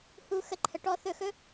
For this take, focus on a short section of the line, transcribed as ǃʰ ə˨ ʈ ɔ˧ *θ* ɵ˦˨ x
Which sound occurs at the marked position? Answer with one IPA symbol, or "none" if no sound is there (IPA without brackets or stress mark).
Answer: θ